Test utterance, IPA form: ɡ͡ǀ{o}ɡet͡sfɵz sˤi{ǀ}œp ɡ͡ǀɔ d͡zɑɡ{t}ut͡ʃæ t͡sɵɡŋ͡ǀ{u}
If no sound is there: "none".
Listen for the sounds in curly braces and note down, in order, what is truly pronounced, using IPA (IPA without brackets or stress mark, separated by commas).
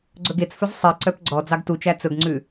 ɵ, ǀ, t, ʉ